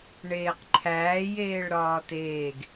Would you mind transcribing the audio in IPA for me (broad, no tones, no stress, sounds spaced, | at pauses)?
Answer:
ɳ eː q ǃʰ æː j eː ɭ ɾ ɒː t eː ɡ